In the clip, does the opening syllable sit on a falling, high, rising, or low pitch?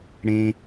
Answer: low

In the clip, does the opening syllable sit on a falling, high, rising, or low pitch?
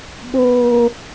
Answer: high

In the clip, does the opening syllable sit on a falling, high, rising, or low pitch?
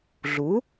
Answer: rising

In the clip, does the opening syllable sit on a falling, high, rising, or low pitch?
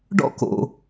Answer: high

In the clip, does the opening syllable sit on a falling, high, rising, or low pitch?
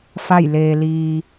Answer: falling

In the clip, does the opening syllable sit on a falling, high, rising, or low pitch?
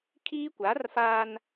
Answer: high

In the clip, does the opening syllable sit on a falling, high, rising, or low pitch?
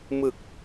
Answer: low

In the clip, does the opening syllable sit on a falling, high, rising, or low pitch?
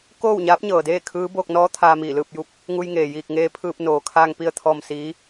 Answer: falling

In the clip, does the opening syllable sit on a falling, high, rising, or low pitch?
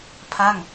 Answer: falling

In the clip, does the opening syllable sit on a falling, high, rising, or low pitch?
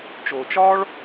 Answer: low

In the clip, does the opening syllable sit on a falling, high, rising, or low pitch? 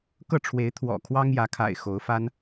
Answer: falling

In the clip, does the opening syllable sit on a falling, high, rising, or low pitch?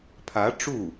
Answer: rising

